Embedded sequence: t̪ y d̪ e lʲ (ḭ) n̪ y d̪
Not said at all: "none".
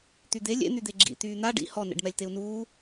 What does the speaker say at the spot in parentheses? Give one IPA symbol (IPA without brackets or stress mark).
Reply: ḛ